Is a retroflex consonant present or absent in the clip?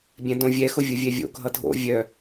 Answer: absent